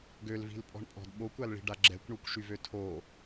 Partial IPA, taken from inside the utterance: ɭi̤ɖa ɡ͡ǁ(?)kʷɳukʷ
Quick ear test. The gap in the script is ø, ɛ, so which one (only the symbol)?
ɛ